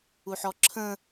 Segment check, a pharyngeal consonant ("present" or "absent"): present